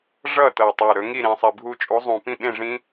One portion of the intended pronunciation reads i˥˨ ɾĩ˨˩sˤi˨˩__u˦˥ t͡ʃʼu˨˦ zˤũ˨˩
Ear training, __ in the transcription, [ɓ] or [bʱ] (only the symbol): bʱ